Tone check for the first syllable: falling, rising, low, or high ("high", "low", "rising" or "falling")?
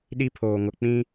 high